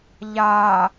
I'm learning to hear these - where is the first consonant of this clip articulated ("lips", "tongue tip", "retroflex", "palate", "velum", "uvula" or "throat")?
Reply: palate